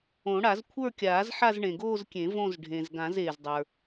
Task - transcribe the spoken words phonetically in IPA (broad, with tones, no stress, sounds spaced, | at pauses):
õ˨˩˦ ɽ a˨˩˦ z kʷʰ ə˞˥˧ kʲ aː˨˩˦ z ħ a˥˧ z ɳ ẽ˩ ɡ oː˥˧ z kʲ ẽ˨˩˦ v õ˥˧ z ɖʱ ẽ˩ z ɡ ã˨˩˦ z eː˩ z dˤ ə˞˩